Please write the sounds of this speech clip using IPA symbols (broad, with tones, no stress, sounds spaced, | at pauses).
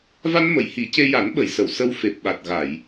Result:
v a˧ n m ə˨˩˨ j h i˨˩˦ c e˧ j a˨˩˦ n ɓ ə˨˩˨ j s ə˨˩˨ w s ə˧ w f e˨˩ p̚ ɓ a˨˩ t̚ ɣ a˨˩˨ j